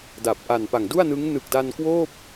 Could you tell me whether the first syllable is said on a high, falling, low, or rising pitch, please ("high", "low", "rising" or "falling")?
low